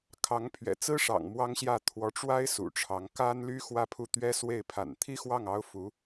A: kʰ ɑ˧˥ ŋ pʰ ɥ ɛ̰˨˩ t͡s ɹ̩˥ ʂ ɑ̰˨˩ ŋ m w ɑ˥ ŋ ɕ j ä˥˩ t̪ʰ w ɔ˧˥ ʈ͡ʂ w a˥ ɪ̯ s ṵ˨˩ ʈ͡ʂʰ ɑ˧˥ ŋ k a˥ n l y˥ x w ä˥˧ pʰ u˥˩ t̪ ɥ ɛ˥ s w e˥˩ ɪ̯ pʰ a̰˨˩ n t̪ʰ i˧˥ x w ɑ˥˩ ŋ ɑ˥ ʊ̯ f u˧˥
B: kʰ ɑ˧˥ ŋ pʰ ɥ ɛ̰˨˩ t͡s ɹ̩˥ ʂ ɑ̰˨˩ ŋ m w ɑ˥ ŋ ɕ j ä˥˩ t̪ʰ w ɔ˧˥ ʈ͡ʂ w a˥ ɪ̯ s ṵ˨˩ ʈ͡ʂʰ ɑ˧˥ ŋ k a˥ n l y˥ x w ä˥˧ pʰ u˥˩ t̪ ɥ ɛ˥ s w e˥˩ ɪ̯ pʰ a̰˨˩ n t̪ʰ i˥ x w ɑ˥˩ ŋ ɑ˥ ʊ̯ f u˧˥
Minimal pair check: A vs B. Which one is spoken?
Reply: B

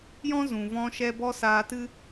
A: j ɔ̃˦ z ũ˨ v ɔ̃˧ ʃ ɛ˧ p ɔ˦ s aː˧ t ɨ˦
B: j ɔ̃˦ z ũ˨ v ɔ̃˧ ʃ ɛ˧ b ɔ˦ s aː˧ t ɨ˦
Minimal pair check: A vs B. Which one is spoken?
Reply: B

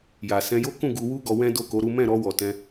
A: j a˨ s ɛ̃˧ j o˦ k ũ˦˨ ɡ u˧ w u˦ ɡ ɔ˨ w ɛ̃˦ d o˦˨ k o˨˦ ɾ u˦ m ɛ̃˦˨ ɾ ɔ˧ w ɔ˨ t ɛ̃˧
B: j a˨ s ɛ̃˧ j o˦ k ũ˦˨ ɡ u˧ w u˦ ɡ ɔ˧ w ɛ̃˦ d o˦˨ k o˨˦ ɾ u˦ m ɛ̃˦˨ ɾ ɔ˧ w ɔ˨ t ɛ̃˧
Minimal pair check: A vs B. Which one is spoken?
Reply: B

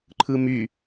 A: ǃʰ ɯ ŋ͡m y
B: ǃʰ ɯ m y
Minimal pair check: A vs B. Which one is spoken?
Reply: B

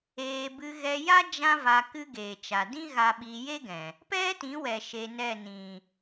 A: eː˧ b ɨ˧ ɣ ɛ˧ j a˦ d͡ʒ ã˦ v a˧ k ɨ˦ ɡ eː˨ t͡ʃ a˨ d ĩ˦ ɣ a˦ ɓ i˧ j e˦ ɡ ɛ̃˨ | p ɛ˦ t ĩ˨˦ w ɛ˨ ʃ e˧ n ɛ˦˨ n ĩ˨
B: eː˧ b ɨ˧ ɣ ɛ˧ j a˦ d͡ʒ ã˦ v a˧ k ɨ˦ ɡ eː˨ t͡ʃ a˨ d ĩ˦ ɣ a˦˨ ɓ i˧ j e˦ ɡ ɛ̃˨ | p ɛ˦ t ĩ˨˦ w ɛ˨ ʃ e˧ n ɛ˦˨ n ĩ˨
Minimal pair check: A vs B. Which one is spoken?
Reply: A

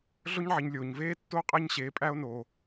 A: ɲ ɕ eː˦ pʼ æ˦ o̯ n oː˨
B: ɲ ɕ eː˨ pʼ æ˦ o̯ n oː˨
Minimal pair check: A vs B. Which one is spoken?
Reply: B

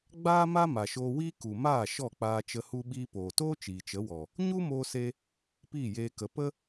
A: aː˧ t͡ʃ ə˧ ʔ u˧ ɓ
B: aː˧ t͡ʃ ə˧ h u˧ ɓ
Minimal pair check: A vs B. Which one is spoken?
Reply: B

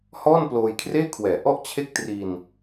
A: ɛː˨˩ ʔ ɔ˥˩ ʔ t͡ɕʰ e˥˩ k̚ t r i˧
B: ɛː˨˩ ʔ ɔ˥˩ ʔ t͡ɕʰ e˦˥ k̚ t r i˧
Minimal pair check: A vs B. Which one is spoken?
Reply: A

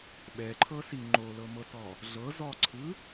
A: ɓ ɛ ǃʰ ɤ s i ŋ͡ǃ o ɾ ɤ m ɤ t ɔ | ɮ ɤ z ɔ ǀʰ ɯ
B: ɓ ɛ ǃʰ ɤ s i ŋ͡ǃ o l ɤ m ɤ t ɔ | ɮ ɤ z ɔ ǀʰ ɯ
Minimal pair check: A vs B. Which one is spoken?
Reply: B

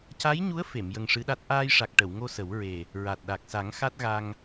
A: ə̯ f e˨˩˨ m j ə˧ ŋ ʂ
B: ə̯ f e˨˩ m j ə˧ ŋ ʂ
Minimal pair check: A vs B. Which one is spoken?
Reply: A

